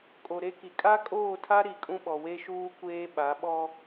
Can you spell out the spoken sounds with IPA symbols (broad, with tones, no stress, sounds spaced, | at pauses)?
kʼ o˨ ɾ e˦ k i˨ kʼ a˦ kʼ oː˦˨ tʰ a˦ ɾ i˨ kʼ ũ˦ ɓ ɔ˨ w e˦ ʃ uː˦ kʷ eː˦ ɓ a˨˦ ɓ ɔ˦